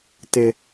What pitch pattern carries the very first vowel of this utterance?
high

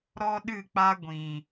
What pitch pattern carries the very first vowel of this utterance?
high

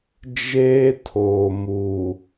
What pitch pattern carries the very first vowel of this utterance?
high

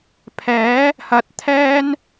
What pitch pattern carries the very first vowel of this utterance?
rising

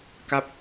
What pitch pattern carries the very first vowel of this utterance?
falling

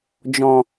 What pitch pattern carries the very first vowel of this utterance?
low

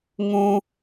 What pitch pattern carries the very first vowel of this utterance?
high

